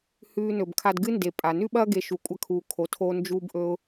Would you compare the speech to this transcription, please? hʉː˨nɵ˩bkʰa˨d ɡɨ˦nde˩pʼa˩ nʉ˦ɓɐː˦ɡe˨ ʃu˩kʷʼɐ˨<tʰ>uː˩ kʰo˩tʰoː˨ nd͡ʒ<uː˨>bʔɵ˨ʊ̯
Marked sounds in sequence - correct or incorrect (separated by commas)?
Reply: incorrect, correct